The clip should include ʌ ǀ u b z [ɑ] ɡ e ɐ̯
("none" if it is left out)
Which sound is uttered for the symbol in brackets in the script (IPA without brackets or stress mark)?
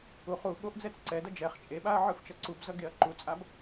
ʌ